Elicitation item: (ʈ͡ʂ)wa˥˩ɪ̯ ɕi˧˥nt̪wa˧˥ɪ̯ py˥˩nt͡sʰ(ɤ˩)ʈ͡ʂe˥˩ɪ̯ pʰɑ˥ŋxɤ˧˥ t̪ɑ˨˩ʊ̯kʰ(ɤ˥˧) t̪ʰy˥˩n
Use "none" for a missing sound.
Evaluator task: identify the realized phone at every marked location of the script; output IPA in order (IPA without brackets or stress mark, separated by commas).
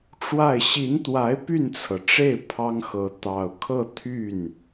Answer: ʈ͡ʂ, ɤ˩, ɤ˥˧